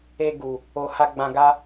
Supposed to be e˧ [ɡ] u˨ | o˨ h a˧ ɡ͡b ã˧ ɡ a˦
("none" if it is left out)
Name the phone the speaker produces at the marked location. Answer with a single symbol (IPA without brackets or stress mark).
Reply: ɡ